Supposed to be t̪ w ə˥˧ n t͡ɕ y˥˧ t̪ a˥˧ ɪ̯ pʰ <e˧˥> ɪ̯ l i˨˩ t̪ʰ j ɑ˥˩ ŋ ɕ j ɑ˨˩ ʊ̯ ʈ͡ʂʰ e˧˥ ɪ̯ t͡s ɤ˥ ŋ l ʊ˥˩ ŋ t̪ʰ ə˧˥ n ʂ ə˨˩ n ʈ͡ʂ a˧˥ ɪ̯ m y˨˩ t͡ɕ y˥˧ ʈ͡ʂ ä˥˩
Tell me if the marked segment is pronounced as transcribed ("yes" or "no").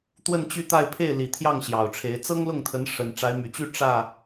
no